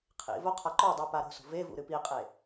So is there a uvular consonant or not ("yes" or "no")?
yes